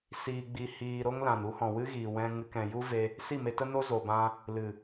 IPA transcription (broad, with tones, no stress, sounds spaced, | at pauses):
s iː˧ ɡ͡b i˧ h iː˧ ɾ o˦ ŋ l ã˨ n u˦ h ɔ̃˨ w ɨ˦ ɣ iː˨ w ɛ̃˧ ŋ ɨ˧ k ɛ̃˨ j u˦ v e˧ | s i˦˨ m e˧ t ə˦ n o˦ z o˨ b ã˧ | l ɨ˨